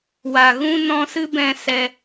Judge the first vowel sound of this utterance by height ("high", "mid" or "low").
low